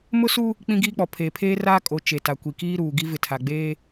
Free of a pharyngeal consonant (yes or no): yes